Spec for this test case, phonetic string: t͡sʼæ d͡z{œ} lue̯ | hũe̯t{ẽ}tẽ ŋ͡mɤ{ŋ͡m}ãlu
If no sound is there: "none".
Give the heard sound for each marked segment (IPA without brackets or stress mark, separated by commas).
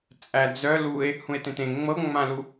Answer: œ, ẽ, ŋ͡m